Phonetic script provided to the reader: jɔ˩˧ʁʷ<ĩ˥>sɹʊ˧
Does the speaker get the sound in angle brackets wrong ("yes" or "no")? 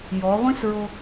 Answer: no